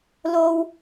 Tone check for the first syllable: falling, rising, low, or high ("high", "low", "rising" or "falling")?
high